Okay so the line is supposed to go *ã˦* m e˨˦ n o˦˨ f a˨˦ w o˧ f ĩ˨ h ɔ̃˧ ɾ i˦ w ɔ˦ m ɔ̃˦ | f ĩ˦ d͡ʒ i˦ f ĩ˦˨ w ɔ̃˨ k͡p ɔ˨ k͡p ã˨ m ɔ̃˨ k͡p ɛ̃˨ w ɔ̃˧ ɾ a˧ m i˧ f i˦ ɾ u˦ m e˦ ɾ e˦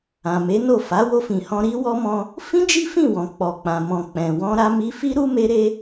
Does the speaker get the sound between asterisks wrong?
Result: yes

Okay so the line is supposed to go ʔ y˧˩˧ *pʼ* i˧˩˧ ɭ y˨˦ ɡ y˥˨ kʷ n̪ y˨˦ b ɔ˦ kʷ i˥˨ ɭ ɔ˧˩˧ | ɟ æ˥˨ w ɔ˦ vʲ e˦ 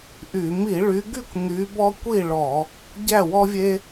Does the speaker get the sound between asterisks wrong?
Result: yes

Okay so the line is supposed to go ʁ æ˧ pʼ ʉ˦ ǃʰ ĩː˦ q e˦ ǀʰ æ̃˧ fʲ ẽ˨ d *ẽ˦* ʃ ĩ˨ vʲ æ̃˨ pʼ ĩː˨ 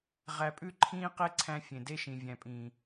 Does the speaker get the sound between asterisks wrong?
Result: yes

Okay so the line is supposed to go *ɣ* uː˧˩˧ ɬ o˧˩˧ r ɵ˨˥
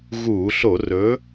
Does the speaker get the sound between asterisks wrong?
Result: no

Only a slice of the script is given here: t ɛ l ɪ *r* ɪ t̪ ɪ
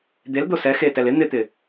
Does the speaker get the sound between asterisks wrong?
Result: yes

